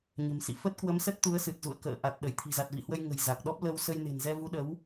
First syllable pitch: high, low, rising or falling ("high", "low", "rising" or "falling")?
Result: low